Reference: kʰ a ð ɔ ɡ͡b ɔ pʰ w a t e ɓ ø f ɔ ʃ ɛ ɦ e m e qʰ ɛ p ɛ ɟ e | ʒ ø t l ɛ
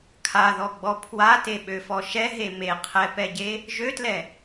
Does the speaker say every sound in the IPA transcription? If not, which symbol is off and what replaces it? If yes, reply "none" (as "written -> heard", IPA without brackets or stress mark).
none